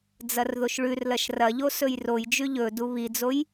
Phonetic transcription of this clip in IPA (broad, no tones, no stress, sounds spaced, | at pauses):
d͡z ɐ r ð o ʃ ɭ ʉ r l ɐ ʃ r ɐ ʎ o s ɵ j r o j d͡ʒ ʉ ʎ ɵ d u β i d͡z o j